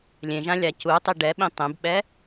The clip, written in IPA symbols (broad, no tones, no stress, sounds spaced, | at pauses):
lʲ ẽ ʒ ã lʲ a c u tˤ i ɖ ɛ ɓ ĩ tˤ ẽ b ɓ ɛ